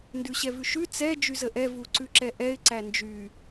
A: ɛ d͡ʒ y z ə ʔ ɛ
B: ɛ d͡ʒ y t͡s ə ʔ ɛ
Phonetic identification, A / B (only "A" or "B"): A